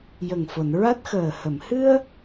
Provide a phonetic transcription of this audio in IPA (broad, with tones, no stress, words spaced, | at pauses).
jə˨˩ŋfo˨˩˨n ɹa˦˥t̚xəː˨˩ hə˨˩˨mhɨ˧ə̯